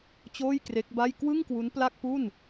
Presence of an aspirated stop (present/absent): absent